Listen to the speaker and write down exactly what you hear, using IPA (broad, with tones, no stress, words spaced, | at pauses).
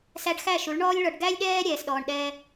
sæ˧ɖxæ˦˨ ʃu˨˦ɭɳɔː˦lʲɭɔ˧ɖ ɡæ˦lʲɗɛː˦ ɾʲɛː˧sɗɔː˧ɳɗɛː˦